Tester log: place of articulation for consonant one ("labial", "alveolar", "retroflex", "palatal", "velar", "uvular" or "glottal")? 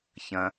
palatal